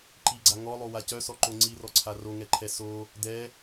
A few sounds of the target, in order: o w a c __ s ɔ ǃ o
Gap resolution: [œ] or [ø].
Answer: œ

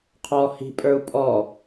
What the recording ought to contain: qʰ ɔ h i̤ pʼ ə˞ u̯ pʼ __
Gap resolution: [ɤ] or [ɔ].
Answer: ɔ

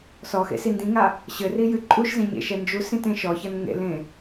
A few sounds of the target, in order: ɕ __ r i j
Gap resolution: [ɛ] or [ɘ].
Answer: ɘ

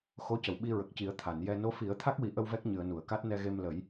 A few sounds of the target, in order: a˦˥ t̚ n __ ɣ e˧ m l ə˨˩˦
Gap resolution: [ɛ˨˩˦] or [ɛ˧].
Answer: ɛ˧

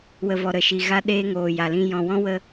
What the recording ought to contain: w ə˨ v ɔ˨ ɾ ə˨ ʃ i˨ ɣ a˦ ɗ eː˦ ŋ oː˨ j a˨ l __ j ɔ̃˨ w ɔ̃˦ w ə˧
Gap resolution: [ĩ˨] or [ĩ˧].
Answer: ĩ˧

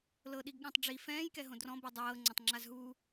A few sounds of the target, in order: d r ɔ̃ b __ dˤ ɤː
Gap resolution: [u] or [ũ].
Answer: u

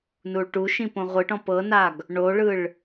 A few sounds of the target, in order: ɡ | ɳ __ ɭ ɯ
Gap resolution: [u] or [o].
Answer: o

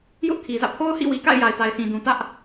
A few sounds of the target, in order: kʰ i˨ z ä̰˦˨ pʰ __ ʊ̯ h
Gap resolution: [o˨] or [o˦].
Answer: o˦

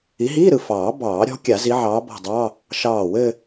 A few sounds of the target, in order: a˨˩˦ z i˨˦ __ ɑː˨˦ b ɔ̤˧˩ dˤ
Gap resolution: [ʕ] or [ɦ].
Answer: ʕ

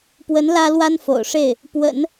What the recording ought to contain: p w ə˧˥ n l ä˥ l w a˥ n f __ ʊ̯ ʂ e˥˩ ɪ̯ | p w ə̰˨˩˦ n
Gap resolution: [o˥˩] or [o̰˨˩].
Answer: o̰˨˩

